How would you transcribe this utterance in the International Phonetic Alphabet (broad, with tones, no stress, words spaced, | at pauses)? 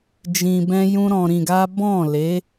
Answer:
d͡ʒĩ˧bɛ̃˦jũ˦ ɾɔ̃˧ɾĩ˧ɡa˦ bɔ̃˦˨le˨˦